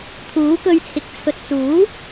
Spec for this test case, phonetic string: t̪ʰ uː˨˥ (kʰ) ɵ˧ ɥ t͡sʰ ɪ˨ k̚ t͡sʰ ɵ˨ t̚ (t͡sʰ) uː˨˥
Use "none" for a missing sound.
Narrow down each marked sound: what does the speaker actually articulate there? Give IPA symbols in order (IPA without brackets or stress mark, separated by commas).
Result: k, t͡s